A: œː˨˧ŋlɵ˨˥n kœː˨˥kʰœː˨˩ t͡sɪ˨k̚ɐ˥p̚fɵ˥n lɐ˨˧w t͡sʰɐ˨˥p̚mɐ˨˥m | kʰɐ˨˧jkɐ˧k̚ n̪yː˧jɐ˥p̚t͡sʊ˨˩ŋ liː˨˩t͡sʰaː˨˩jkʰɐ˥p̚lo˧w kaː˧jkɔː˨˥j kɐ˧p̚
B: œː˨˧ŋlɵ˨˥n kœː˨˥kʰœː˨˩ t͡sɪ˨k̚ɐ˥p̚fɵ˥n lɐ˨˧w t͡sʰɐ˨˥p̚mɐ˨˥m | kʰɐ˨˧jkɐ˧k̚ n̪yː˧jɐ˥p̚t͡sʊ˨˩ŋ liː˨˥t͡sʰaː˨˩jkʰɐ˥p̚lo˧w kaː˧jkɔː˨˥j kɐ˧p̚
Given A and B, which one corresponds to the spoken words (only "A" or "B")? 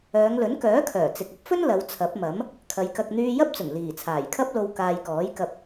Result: A